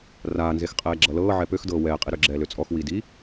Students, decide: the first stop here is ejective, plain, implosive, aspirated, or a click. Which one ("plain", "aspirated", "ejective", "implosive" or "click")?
ejective